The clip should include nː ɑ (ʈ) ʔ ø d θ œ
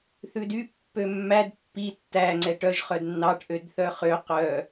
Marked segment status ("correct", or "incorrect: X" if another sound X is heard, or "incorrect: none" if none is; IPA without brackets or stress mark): correct